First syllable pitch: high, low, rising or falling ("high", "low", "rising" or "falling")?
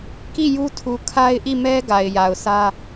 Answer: falling